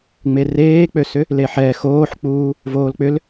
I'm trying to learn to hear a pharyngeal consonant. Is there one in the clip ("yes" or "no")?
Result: yes